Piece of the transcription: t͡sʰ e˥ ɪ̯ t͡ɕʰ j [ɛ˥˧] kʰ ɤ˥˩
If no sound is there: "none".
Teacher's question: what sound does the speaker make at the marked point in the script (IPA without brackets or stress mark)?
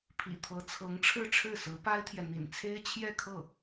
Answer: ɛ˥˧